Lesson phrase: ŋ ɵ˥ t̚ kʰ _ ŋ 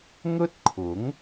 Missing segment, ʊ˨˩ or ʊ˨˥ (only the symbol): ʊ˨˥